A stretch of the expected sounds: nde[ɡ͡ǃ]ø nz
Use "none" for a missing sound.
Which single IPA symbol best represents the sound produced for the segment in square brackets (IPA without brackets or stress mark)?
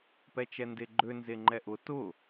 ɡ͡ǃ